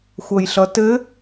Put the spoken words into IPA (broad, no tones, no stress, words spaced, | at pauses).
xʷʌjɬʌtɘ